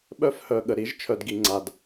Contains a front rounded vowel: yes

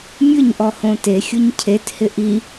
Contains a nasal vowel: yes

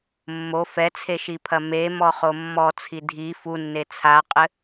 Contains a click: no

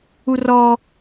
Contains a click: no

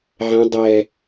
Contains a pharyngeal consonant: yes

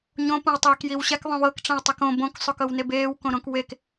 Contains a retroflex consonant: yes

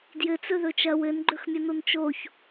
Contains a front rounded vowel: no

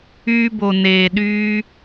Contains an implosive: yes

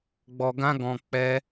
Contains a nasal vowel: yes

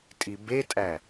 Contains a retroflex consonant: no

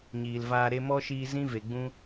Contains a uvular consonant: no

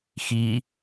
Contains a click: no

